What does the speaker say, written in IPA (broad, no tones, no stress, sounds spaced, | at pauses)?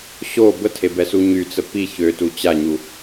ɕ o b ə tʰ e b ɛ s u ɲ y t͡s ə p i ç ø t u t͡ɕ a ɲ u